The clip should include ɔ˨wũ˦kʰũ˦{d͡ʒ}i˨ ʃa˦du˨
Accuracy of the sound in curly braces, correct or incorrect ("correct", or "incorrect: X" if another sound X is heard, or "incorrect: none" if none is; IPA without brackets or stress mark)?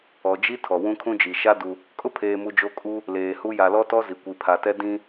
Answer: correct